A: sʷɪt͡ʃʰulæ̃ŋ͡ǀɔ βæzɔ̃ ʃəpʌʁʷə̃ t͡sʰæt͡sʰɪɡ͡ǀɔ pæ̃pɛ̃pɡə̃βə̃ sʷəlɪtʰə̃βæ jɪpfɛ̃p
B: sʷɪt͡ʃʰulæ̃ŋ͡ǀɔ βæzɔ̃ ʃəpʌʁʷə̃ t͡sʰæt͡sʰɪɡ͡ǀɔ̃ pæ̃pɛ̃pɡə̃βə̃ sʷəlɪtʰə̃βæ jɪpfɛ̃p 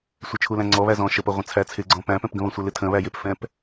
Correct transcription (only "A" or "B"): B